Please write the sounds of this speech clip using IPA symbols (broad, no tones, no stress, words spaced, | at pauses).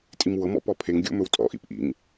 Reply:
tʼimwɤmɔ̰ pɔpʰeŋɡʲo̰ mɵwtʼɔ̰ʔḭp ʔḭŋ